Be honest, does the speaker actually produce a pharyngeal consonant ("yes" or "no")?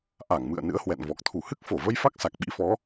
no